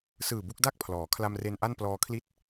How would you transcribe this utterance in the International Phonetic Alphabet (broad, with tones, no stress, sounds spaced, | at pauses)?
s ɯː˨˩ b u˦˥ k̚ d a˥˩ k̚ pʰ l ɔː˩˦ kʰ l a˧ m r e˧ n ʔ a˥˩ n p l ɔː˧ kʰ l i˥˩ t̚